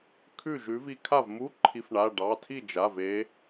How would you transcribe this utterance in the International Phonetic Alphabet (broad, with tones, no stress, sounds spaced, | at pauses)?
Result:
kʰ ʉ˥˩ ʒ ʉ˨˦ v i˨˦ kʰ a˥˩ v m u˧˥˧ ǃʰ i˨˦ f ɳ a˩˧˩ ɖ ɑ˩˧˩ tʰ i˥˩ d͡ʒ a˩˧˩ v e˨˦